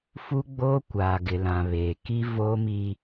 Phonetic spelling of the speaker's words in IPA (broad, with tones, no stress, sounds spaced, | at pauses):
f u˦ ɡ͡b oː˦ kʷ aː˨ ɡ ɪ˨ l ã˨ β eː˨ k i˦ v oː˦ m i˦